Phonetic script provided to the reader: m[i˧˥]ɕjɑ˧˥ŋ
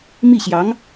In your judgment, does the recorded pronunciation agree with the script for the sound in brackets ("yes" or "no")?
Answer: no